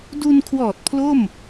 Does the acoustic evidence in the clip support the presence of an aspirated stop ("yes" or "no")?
yes